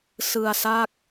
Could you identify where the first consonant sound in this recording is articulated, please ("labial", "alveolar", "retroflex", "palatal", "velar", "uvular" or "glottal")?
alveolar